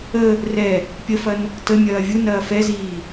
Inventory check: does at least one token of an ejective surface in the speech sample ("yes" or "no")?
no